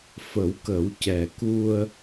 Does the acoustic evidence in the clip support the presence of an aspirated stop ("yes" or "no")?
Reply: no